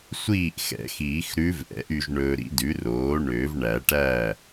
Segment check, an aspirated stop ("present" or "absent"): absent